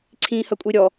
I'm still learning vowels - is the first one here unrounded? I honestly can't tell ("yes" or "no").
yes